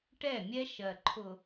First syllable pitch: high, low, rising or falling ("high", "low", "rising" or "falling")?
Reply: falling